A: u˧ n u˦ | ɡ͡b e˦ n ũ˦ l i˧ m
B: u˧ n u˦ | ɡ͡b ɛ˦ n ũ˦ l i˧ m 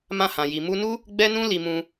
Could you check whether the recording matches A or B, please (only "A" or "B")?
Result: B